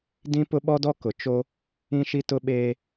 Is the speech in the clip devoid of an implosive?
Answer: no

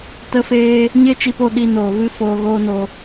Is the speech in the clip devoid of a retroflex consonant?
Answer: yes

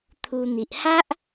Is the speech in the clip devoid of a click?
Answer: yes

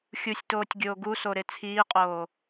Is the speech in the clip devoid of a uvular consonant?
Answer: no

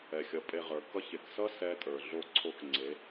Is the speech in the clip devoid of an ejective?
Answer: no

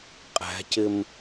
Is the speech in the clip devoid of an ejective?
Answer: no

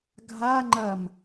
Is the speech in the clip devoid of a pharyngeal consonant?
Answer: yes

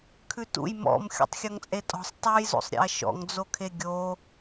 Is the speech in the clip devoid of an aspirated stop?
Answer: no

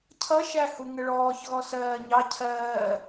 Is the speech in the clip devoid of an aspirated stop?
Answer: no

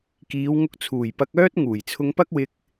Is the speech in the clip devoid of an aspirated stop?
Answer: no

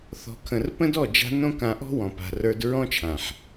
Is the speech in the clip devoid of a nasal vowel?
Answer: no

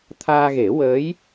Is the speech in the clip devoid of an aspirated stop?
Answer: no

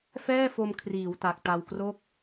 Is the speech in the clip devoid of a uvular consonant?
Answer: yes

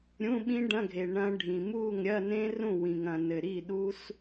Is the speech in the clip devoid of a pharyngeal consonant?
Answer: yes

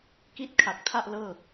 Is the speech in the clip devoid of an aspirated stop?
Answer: no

